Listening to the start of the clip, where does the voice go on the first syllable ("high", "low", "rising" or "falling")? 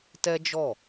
high